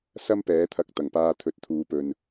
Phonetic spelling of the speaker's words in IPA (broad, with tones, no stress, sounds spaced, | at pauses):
s ɐ˥ m p ɛː˨˥ t̪ʰ ɐ˧ k̚ t̪ ɐ˨˩ ŋ p aː˧ t̪ʰ ɵ˨˥ t̚ t̪ʰ uː˨˧ p ɵ˨ n